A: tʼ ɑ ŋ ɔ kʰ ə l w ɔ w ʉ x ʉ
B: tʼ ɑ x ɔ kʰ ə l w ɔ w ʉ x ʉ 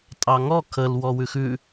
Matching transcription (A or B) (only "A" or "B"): A